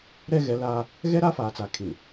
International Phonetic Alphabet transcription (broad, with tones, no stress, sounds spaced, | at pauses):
ɾ ɛ˦ ɣ ɛ˨˦ l aː˦ | ɣ ɛ˦ ɾ a˦ f aː˨ t͡s a˨ kʰ ĩ˨ n